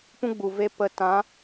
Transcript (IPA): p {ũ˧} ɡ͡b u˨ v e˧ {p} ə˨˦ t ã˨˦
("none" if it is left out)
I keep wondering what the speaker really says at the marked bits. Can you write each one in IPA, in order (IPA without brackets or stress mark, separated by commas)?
ũ˦, p